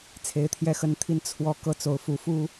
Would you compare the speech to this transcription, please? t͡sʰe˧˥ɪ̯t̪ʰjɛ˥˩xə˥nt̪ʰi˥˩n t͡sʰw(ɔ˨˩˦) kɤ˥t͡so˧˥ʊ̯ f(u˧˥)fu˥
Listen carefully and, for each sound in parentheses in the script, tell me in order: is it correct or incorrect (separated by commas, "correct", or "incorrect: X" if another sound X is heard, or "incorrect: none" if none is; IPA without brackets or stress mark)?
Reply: incorrect: ɔ˥, correct